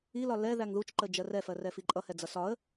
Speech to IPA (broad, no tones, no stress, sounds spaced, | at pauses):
i l ɒ l ɛ ð æ ŋ ð u t͡ʃ ǃ ə d͡ʒ ɜ r ɛ f ɜ r ɛ f i ǃʼ ʌ h ɛ d͡z ʌ s ɒ ə̯